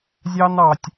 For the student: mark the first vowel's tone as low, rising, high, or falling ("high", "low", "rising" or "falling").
high